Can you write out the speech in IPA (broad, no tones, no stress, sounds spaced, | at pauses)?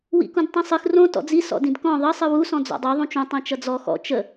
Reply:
w ḭ k ũ d tˤ ĩ sˤ ɨ x r õ t ɔ̰ d͡z i s ɔ̰ d ĩ d k ɔ̃ ðˤ ə sˤ ɨ w u s ɔ̃ d͡z ɔ̰ dˤ ə˞ ðˤ ũ t͡ʃ ũ tˤ ĩ t͡ʃ ʌ d͡z ɔ x ɔ̰ t͡ʃ ə